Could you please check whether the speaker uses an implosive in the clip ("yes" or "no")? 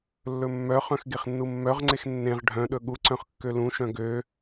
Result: yes